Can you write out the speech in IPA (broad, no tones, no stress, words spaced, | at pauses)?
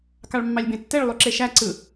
kɑɭmːɑlʲbẽtːeɭ lˠyǁeʃæ ǀɯ